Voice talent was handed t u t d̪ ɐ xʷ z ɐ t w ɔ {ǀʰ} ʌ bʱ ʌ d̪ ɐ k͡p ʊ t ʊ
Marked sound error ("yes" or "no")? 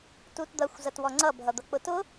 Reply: yes